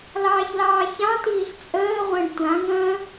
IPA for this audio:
lɑːçlɑːçɑ̃tiːɬ t͡sʼəː ʁʷə̃ːɖtʷãŋə̃ː

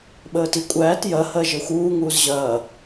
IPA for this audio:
ɓəːtikʷʼæːt jɐ hɜʒə˞xʷuː ŋuːzʑɐː

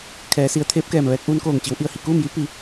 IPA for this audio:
kʰɛː˩˧si˩˧ə̯t̪ʰeː˧˥p̚kɛː˧˩m ʋɛː˧k̚ʔuː˧nkoː˧˩ŋt͡ɕi˩˧w ʔi˧˩ə̯hi˩kuː˥˨mji˧˥ pi˩˧

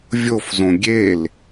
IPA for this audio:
vʲofzõ ɡʲel

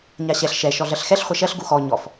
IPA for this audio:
ɲaɕɛɬ ʃɛ ʃɔɮɜɬxɛɬ χʷɛʃɜɬ ɡuxɔ ɲɔf

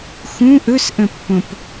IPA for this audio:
xũ ʔɵsʔə̃pːõp

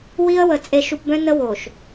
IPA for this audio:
wi˦ə̯wə˨ t͡sʼe˨ʃu˨pbœ̃˦ nə˦wo˨ʃ

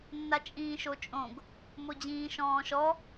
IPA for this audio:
nːat͡ʃʼĩːʃot͡ʃʼõɡ | mod͡ʑĩːʃɔ̃ːʃɔ

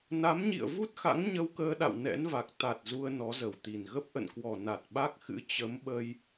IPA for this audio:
na˨˦mɲḭ˧˨ə̯vu˦˥t̚xa̰˧˥ŋ ɲə˧wkəː˧ɗa̰˧˨w nɛ̰˧˥nva˨˩k̚ t̪a˨˩t̚zu˧ə̯ nɔ˨˦zə˧˩wt̪i˨˩n ɣə˦˥p̚ʔə̰˧˨nkwɔ˨˩ na˨˩t̚ ɓa˦˥k̚xɨ̰˧˥ t͡ɕə˨˦mɓə˧j

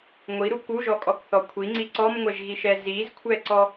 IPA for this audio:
ŋʷiɾu kuʒɔkʼɔkθɔ kʷʰiŋ͡ǀi ǀɔmŋʷɛʒɣiʃɛ zizkʷʰɛǀɔ

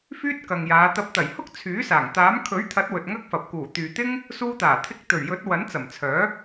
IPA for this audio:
fyː˥t̚kɐ˨ŋjaː˨˧ t̪ɐ˧p̚ t̪ɐ˨˩jhʊ˥k̚ t͡sʰyː˨˥saː˨˩ŋ t̪aː˨˥m kʰɵ˨˥ɥt̪ʰɐ˨˥t̚ wɵ˨t̚ŋɐ˥k̚fɐ˨p̚ kuː˨˩t̪yː˨t̪ɪ˥ŋ | suː˧t̪aː˨˩t̪ʰɪ˧k̚ t̪ɵ˨˩ɥjɵ˨˥t̚ wɐ˨˥nt͡sɐ˨˩mt͡sʰœː˨˥

